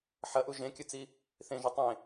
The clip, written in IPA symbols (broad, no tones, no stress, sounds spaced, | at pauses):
ħ ɐ ʔ u ʒ ẽ kʲ ɨ t͡s i | θ ẽ ʒ ɵ tˤ ẽ